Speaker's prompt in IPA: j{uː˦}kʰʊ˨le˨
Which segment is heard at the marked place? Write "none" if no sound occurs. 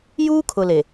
uː˦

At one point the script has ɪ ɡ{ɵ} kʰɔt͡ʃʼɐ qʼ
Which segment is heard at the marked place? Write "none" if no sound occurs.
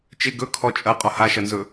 ɵ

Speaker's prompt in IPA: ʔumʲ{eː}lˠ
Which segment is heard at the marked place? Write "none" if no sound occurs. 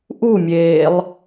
eː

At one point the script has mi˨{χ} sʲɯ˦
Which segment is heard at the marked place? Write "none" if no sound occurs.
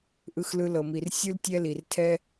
r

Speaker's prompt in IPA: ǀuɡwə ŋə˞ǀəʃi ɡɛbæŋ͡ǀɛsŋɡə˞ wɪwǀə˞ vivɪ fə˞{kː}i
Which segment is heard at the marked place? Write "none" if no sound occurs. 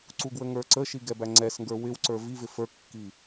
kː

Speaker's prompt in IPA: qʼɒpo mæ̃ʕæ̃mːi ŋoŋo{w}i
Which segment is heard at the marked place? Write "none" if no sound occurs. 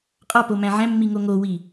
w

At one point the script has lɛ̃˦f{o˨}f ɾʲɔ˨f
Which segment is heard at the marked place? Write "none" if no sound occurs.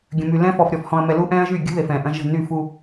ɔ˨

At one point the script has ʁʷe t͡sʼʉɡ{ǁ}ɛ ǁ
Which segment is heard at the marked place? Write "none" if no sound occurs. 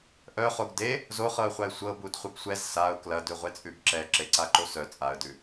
ǁ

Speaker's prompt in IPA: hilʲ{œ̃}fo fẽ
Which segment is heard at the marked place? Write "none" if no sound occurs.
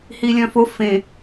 œ̃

